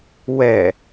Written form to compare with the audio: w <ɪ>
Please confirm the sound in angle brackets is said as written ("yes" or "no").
no